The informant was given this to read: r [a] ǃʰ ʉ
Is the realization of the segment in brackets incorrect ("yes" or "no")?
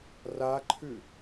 no